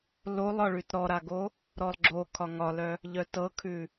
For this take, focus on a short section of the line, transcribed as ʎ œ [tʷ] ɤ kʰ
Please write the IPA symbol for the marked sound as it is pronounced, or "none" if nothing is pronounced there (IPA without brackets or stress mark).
t